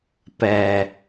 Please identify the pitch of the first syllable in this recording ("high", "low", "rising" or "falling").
low